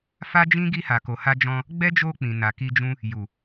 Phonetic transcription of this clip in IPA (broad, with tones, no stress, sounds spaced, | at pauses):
f a˦ d͡ʒ ĩ˦ ɡ i˧ h a˨ k o˨ h a˧ d͡ʒ ɔ̃˧ | ɡ͡b ɛ˦ d͡ʒ o˧ k͡p ĩ˨ n a˨ k i˧ d͡ʒ ũ˦ | j u˨